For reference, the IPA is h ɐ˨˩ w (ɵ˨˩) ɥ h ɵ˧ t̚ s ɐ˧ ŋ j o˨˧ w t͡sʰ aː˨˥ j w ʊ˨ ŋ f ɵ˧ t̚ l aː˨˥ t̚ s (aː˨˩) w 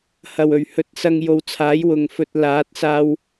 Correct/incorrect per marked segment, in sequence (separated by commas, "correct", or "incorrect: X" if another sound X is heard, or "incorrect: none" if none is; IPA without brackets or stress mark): correct, incorrect: aː˧